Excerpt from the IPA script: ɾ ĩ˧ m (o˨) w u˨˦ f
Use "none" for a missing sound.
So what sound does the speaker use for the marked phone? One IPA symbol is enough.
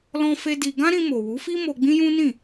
o˨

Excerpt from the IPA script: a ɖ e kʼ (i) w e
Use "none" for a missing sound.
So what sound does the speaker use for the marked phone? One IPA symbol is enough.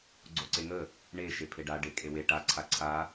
e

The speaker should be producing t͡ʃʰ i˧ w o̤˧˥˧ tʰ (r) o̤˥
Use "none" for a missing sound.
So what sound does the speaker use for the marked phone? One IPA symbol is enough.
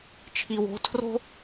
r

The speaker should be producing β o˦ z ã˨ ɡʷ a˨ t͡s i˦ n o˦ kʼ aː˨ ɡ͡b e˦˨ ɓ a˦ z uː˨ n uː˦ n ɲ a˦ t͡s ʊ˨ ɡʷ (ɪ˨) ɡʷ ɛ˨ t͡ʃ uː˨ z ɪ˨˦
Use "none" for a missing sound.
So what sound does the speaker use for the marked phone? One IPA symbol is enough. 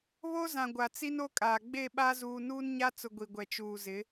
i˨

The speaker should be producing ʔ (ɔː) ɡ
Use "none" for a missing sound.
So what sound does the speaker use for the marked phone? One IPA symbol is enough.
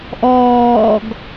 ɔː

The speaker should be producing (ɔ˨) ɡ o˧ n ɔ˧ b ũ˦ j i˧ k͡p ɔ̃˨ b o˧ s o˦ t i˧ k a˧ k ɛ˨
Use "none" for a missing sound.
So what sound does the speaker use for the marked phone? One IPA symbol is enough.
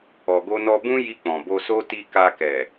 ɔ˨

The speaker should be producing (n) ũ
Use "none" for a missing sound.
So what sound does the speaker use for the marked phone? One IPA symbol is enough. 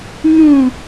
ɲ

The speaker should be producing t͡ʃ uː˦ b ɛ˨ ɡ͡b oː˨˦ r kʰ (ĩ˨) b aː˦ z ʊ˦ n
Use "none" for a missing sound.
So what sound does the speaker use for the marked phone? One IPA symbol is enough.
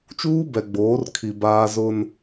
i˨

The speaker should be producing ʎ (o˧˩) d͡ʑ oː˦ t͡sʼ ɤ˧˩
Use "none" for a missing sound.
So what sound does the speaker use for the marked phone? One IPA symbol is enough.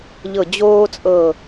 ɤ˧˩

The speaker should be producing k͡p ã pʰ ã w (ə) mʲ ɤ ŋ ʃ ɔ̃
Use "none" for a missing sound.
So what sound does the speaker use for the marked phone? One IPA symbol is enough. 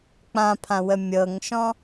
ə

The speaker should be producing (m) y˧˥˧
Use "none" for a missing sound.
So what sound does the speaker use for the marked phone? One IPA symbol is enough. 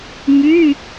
m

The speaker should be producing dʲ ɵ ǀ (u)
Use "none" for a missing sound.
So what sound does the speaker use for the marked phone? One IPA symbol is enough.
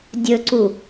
u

